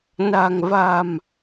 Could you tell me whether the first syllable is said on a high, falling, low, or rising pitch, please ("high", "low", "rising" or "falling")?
low